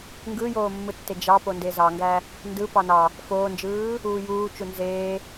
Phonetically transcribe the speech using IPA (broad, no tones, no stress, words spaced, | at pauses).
ŋɡɯjoːmːɯtːe d͡ʒɑpo ndezɑŋɡæ | ndɯ pɑnɑ | foːnd͡ʒɯː | uːjuːt͡ʃu nzeː